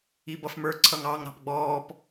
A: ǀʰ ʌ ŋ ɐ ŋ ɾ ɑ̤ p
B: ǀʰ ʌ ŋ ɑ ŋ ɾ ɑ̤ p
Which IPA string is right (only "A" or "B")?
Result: B